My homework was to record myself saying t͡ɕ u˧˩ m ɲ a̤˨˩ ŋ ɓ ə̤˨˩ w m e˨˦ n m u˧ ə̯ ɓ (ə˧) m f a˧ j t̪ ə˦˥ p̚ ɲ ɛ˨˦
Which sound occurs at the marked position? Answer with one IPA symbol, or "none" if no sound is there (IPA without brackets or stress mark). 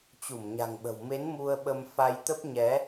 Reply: ə˧